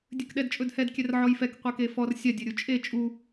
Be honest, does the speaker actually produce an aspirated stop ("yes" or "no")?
no